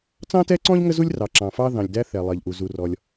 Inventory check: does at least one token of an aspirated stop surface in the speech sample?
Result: no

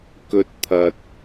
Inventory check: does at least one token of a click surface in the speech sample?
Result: no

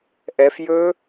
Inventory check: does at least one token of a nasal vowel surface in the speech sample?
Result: no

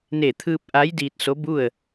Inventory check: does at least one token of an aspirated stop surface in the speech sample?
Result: yes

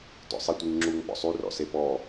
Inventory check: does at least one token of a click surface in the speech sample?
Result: yes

